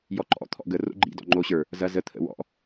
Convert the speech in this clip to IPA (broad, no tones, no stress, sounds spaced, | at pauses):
j ɔ ǃ ɔ̰ t̪ʰ ɔ̰ ɡ ə r o̰ ɡ͡ǃ ḭ d ɔ̰ ŋ͡ǃ o ɕ ə˞ | z ɐ z ə t̪ʰ ə̰ w ɔ̰